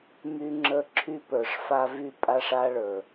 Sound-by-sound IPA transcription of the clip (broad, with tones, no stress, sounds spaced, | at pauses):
m y˦ ŋ͡ǁ ə˦˨ ǁʰ y˦ p ə˞˨ ʂ f a˦ v y˦ pʼ a˦ ʂ a˦ ɭ ə˞˨